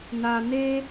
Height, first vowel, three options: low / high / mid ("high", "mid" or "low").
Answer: low